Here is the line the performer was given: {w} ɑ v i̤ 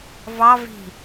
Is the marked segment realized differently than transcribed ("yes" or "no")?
yes